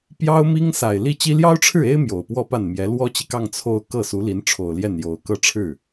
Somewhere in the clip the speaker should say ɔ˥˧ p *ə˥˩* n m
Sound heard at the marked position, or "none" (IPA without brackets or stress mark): a˥˩